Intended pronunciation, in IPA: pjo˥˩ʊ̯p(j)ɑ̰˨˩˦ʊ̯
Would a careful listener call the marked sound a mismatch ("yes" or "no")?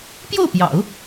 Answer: no